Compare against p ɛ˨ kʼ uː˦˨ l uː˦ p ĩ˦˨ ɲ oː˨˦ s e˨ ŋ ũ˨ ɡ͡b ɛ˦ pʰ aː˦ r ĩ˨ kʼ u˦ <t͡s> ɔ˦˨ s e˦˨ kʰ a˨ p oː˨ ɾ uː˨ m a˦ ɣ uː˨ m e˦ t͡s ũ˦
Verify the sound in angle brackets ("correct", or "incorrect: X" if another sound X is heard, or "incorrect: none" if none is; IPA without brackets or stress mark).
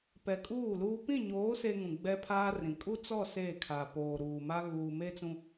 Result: correct